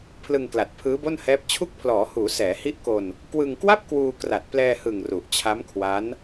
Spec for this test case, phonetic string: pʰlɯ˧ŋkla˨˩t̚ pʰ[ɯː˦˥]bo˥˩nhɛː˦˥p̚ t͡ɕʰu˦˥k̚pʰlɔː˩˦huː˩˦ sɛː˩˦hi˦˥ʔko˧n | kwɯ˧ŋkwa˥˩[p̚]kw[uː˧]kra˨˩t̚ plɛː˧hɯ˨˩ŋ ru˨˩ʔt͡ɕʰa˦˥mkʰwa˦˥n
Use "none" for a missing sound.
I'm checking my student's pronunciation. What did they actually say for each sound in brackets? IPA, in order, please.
ɯː˦˥, p̚, uː˧

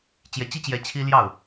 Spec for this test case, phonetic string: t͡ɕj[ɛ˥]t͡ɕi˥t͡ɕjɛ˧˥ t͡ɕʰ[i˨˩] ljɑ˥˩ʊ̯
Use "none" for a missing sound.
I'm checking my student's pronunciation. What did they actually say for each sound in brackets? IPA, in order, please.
ɛ˧˥, i˥

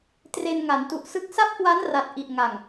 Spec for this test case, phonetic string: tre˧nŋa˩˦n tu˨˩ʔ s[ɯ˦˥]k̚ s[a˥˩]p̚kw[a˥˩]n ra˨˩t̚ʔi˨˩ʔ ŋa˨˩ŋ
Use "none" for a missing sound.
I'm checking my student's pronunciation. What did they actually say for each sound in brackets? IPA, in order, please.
ɯ˥˩, a˥˩, a˦˥

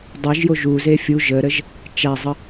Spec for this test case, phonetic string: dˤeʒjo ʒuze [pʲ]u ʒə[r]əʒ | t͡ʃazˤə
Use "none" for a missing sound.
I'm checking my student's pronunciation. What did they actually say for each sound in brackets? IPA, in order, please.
fʲ, ɾ

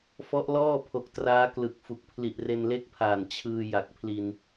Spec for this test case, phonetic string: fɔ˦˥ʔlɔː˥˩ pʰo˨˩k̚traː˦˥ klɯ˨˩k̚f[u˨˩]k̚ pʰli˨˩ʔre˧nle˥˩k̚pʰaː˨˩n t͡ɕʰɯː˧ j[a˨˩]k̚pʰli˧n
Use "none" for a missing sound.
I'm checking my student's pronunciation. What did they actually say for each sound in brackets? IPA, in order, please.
u˨˩, a˨˩

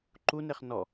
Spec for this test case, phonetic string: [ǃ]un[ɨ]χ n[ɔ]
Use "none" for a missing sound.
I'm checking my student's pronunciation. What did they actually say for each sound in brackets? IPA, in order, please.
ǃ, e, ɔ

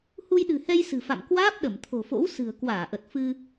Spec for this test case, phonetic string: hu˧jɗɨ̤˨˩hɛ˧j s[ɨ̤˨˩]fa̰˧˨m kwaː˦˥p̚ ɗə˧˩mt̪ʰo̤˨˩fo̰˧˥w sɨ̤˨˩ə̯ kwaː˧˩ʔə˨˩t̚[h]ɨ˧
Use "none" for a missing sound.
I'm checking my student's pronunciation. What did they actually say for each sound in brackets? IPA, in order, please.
ɨ̤˨˩, f

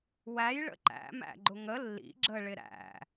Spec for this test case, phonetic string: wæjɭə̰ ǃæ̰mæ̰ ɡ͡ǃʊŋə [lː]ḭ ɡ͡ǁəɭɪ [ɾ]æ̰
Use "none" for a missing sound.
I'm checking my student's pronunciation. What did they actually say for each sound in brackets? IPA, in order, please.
lː, ɾ

